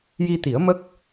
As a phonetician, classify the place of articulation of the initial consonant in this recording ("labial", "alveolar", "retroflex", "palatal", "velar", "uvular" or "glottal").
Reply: palatal